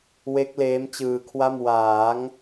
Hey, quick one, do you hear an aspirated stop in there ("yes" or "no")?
yes